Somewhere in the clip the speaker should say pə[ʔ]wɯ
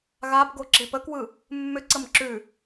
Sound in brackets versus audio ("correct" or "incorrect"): incorrect